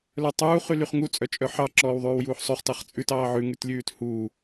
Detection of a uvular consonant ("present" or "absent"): present